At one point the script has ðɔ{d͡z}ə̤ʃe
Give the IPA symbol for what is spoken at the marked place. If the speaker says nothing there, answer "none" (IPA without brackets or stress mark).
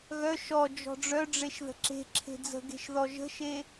ʒ